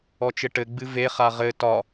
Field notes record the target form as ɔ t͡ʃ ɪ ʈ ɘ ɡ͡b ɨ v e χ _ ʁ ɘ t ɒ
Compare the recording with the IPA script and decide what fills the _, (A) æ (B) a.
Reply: B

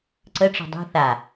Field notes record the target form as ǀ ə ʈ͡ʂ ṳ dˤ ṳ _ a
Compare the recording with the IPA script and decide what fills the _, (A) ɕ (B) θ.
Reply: B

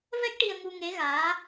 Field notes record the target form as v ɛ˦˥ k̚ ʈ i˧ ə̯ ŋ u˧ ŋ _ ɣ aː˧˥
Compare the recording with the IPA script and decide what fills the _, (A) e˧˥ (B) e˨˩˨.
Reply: A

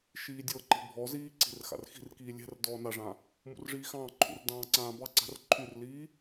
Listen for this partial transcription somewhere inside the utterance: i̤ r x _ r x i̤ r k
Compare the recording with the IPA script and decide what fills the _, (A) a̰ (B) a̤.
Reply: A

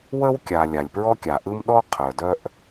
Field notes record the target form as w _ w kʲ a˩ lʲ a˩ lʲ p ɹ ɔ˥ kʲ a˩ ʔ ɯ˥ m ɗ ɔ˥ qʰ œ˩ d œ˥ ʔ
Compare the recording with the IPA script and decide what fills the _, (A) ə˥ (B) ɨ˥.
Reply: A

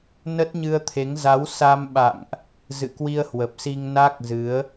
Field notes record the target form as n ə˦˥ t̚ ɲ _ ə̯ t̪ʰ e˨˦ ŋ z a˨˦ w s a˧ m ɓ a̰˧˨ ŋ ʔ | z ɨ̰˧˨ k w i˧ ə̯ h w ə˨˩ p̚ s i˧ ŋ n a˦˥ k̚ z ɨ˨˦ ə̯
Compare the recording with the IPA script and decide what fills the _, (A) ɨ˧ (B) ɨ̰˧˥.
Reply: A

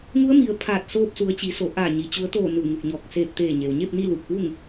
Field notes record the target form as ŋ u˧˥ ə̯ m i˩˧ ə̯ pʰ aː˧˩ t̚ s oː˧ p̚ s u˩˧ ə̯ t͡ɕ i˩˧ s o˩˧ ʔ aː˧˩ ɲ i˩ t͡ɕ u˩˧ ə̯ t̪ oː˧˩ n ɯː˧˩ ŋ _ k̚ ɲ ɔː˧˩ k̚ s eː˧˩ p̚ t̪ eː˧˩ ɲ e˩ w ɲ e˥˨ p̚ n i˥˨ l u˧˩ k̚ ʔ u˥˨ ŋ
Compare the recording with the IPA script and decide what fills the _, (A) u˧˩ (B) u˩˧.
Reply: A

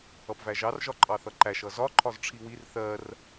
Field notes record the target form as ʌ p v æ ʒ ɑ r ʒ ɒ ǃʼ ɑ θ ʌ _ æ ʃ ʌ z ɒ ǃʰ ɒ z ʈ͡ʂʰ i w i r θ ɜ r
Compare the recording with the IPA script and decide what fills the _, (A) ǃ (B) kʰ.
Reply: A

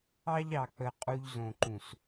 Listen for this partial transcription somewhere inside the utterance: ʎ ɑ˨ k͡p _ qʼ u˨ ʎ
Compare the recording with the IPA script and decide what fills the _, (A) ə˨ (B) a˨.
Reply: A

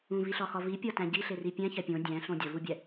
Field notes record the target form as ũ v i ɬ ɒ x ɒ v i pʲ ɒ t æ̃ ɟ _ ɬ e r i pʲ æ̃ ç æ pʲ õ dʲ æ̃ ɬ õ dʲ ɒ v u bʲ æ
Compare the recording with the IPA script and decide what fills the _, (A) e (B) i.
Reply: B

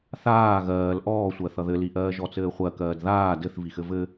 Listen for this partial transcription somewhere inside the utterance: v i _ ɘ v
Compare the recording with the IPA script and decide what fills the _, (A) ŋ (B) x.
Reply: B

